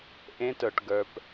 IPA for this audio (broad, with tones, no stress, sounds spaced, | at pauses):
ʔ ẽ˦˥ t ə˞˨ ʈ ɡ ə˞˨ p